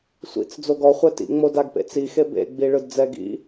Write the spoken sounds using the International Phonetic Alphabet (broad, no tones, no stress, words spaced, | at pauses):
sʷḭt͡s d͡zoɡɔ χʷɛtḭŋ͡mo daɡpḛt͡sixe bḛɡ͡bi ɭɯdd͡zɛɡḭ